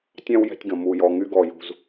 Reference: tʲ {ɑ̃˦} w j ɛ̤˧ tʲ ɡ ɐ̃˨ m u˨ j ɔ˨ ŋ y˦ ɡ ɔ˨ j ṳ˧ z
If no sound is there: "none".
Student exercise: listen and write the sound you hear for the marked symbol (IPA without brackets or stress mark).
ɑ̃˧